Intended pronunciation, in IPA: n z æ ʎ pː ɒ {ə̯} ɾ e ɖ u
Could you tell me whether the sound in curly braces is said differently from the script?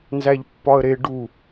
no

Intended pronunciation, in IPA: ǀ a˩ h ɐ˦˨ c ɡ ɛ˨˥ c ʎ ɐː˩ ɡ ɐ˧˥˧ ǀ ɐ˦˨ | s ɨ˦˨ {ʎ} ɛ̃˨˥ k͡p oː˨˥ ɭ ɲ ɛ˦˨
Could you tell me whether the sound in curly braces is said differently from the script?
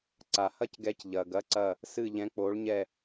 no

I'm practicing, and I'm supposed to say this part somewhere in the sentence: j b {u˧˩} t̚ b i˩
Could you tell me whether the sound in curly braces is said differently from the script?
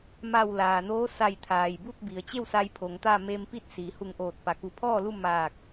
yes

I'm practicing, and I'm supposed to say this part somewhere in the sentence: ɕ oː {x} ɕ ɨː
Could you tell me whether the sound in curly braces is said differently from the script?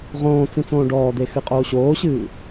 yes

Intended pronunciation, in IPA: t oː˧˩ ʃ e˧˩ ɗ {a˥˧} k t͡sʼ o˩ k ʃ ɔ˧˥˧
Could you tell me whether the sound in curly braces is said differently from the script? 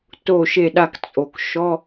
yes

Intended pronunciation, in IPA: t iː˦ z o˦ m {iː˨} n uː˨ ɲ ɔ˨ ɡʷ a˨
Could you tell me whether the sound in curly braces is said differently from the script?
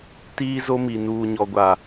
yes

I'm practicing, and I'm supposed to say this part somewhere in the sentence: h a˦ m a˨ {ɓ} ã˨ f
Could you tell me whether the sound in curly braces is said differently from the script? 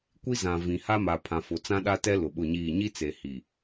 yes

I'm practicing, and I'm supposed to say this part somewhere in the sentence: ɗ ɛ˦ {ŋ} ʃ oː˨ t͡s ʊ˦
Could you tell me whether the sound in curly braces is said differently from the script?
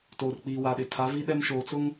yes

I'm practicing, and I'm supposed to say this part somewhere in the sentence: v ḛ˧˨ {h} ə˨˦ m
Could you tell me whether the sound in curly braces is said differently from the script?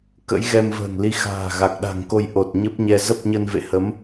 no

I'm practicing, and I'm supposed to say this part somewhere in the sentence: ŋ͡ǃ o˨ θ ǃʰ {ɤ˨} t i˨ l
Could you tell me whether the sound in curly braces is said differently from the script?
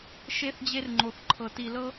no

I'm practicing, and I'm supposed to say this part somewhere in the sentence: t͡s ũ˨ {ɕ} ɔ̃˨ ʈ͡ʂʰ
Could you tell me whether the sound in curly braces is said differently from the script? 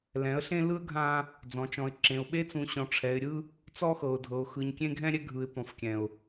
no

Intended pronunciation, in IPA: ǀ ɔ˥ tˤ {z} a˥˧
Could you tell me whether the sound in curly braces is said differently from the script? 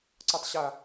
yes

